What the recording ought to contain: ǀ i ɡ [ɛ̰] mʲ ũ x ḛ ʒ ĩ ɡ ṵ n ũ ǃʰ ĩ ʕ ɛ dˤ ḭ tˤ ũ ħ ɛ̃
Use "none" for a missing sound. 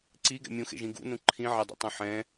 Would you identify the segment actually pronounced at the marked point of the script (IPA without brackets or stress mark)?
ɛ̰